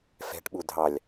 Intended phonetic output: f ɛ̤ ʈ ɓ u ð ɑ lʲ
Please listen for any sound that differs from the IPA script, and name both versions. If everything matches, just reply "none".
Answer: ð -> dʱ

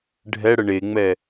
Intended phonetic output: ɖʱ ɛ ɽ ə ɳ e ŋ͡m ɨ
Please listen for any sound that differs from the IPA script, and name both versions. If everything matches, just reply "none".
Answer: ɨ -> ɛ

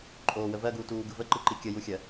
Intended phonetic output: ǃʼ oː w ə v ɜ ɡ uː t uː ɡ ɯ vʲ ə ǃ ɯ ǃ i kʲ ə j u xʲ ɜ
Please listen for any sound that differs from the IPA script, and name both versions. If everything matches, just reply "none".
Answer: vʲ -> v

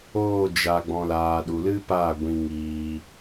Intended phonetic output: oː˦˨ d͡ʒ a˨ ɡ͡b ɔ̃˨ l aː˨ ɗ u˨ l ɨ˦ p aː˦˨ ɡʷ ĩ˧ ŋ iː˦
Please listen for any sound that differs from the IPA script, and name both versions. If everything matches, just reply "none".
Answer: iː˦ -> iː˧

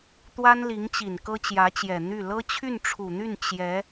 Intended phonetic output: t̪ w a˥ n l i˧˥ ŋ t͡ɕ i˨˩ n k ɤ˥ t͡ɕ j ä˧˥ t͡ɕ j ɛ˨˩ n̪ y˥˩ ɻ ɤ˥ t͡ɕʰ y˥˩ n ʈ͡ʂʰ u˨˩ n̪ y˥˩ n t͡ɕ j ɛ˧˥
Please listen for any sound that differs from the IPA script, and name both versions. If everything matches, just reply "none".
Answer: ɻ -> l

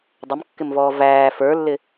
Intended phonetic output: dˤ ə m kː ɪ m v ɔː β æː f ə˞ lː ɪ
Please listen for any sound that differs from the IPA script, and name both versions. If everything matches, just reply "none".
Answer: β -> v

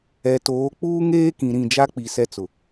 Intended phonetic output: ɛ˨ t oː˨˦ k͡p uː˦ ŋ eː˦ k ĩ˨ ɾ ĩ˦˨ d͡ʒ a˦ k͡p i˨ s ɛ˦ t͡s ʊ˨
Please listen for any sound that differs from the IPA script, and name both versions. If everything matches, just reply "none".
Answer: none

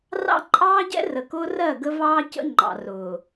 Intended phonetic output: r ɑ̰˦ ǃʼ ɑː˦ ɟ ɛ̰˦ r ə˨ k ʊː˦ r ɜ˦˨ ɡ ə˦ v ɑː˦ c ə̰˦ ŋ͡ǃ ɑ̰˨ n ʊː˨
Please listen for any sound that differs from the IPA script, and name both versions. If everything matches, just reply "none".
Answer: n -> r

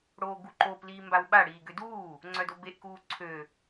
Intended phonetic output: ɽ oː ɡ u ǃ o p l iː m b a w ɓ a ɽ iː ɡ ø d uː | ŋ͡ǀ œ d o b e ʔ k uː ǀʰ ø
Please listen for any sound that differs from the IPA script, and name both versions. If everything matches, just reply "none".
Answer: none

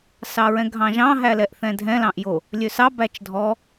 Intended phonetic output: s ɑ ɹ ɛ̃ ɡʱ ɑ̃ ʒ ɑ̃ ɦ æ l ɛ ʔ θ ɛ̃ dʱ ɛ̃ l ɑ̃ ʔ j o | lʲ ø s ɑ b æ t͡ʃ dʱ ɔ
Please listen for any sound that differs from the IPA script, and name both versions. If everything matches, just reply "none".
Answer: none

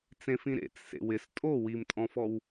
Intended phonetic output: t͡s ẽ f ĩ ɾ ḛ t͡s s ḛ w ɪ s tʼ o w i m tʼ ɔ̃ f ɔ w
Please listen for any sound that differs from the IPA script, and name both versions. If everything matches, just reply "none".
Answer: none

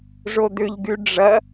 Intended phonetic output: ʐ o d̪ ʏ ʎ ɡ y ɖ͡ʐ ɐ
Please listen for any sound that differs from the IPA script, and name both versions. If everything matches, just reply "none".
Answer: none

